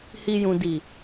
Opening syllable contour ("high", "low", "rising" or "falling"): low